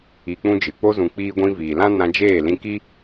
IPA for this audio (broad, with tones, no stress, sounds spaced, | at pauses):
i˧ k͡p ũ˦ d͡ʒ ɨ˨ k͡p o˧ z ũ˨ k͡p iː˧ ɡʷ ĩ˧ v iː˨ l ã˦ n ã˧ d͡ʒ eː˦˨ l ĩ˧ k i˦